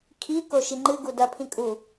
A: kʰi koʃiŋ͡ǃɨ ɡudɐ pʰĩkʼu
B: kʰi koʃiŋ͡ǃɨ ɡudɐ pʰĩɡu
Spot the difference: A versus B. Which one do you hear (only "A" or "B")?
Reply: A